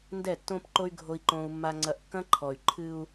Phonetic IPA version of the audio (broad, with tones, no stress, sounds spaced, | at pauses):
n d ɛ˦˨ tː õ˦ p ǃ o˦ y̯ ɡʱ o˦ i̯ ǃ õ˦ u̯ mː a˦ ŋ͡ǀ ɐ˦ ʔ kː ɐ̃˦ ǃʰ ɔ˨ y̯ ǃʰ ɨ˦ u̯